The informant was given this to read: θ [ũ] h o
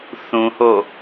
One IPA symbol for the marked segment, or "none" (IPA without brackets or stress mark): ũ